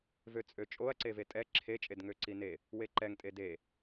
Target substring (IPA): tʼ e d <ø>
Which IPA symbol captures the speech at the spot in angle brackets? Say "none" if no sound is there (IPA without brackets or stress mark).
e